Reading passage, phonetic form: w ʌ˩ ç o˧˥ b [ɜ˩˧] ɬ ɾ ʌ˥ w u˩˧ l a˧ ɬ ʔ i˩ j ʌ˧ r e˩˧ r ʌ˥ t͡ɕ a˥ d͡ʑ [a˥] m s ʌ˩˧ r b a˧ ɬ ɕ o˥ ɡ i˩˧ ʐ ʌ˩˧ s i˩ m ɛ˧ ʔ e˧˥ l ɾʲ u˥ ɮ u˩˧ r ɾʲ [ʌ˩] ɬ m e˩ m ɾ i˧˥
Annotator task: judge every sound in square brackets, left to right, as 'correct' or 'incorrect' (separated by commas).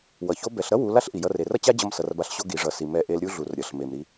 incorrect, incorrect, correct